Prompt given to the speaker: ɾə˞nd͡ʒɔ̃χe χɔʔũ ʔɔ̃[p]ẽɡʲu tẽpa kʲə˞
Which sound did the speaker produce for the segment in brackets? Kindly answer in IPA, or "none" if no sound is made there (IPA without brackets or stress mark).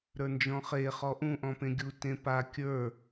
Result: p